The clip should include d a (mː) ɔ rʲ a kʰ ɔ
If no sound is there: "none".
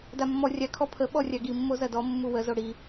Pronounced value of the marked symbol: mː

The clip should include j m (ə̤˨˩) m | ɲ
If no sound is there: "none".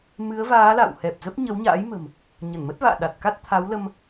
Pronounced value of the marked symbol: ə̤˨˩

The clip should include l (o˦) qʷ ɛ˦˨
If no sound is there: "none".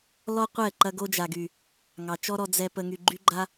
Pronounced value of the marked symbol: ɔ˦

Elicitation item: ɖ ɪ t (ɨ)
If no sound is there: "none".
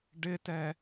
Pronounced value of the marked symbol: ɛ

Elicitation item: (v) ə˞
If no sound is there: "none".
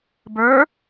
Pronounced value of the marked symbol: b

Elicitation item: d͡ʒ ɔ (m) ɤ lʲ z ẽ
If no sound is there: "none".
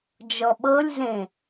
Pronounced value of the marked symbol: ɓ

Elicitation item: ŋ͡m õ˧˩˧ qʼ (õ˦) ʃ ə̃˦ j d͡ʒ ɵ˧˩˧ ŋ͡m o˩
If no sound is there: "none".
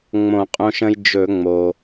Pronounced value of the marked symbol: õ˦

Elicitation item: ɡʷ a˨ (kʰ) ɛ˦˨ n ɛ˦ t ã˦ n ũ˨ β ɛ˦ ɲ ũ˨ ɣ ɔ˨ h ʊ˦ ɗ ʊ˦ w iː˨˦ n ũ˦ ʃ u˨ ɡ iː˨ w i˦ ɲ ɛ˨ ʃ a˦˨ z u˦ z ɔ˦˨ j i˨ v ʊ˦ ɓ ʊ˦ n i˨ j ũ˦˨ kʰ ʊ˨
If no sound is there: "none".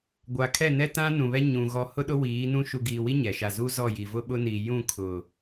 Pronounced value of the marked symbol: kʰ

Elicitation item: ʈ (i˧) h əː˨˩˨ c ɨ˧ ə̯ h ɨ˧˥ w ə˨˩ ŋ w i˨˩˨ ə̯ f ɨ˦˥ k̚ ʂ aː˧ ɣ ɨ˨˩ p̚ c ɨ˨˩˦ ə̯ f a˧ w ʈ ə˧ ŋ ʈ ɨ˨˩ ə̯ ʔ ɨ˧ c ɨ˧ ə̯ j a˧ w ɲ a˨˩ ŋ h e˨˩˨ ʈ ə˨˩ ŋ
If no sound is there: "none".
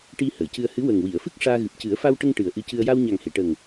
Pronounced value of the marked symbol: i˧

